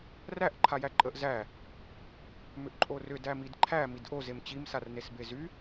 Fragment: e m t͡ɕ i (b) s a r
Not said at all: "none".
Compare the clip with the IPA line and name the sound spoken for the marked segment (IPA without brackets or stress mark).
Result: m